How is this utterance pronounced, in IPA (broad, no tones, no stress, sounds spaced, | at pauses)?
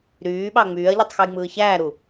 ɾ yː ɓ ɑ ŋ͡m yː ɐ̯ ʎ y tˤ x u j ŋ͡m ɯː ç æː ɾ u